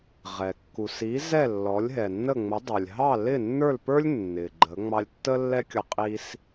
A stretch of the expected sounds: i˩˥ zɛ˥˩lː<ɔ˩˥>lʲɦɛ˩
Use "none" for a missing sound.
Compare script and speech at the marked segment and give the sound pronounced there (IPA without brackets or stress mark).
ɔ˩˥